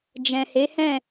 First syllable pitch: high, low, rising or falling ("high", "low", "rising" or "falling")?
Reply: low